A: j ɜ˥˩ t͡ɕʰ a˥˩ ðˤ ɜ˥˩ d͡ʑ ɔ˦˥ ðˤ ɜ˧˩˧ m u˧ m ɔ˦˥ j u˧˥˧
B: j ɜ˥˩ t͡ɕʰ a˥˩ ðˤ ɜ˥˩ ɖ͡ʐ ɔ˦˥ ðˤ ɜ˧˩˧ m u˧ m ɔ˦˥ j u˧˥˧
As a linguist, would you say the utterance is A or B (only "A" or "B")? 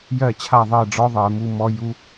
B